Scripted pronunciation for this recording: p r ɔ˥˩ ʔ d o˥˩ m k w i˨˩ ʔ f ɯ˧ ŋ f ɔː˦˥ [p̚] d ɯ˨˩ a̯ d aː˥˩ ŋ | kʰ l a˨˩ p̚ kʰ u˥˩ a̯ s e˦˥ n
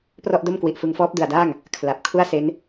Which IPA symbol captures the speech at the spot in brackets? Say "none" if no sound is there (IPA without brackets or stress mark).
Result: p̚